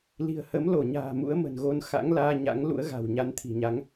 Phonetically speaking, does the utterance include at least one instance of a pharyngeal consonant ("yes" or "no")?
no